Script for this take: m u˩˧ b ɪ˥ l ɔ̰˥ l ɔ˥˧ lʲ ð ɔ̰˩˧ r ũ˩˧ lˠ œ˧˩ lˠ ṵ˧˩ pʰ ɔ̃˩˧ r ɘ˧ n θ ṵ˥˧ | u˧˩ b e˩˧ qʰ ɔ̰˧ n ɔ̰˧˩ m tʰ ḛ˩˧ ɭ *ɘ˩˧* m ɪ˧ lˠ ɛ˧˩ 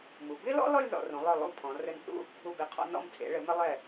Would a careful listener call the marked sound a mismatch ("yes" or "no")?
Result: no